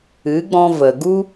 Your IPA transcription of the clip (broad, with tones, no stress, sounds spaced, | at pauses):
ɨ˨˦ ɡ͡b ɔ̃˧ v ə˨ ɡ u˦